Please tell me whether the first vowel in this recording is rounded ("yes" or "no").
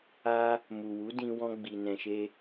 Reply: no